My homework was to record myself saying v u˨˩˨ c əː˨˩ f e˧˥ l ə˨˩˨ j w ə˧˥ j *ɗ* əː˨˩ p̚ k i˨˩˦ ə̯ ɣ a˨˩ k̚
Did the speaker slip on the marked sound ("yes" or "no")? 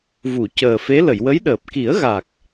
no